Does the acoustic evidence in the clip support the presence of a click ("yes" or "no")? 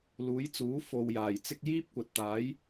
no